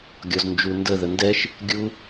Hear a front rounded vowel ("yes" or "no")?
no